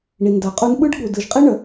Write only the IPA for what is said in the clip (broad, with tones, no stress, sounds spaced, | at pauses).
ɳ i˨ n d a˨ qʼ u˦ n ɓ ɯ˦ ɖ ɠ u˨ d ɯ˨ ʒ qʼ i˦ ɳ ə˨